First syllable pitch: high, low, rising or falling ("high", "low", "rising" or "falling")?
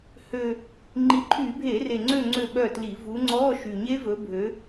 low